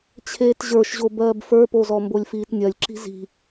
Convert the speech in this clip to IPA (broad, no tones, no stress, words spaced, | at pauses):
t͡ɕʰeːtʑə˞ʃʑo bɜːbfə˞pozɔ mbolʲfiːtnʲɜlʲǁi̤ zi̤